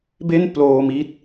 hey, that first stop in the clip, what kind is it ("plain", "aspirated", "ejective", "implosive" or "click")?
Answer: plain